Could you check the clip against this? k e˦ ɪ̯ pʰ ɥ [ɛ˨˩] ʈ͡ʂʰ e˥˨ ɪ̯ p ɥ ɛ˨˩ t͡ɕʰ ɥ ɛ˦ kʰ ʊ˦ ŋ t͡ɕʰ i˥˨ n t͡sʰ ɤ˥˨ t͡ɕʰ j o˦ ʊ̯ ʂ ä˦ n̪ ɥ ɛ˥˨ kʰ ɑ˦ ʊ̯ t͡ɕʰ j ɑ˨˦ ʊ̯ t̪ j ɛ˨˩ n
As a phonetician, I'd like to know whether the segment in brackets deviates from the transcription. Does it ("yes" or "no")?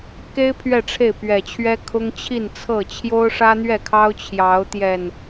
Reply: yes